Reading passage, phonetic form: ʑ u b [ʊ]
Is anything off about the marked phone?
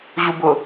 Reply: no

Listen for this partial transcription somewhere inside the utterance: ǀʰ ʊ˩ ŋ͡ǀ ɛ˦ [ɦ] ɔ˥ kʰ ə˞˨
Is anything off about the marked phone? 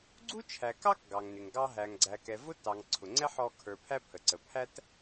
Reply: yes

